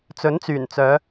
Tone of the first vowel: rising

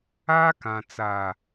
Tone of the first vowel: high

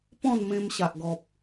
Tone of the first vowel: falling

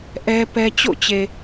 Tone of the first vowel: high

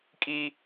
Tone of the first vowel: high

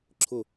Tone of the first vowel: falling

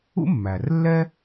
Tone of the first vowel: high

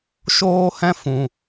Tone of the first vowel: high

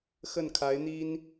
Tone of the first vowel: falling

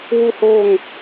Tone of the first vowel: falling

